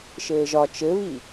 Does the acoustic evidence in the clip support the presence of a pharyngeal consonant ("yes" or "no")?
no